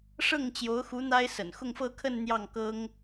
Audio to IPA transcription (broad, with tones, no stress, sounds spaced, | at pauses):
ʂ ɤ˥˩ ŋ t͡ɕ j o˧˥ ʊ̯ x u˧˥ n̪ a˥ ɪ̯ s ə̰˨˩ n x ʊ˥˧ ŋ f ɤ˥˧ kʰ ə˥˧ n n̪ j ɑ˥˩ ŋ k ɤ˥ ŋ